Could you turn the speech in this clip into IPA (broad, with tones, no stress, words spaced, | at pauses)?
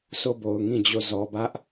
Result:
sʰo˦˨bo˨ʊ̯ŋĩ˦˨d͡ʑo˦˨ zɔ˨bä˦ʔ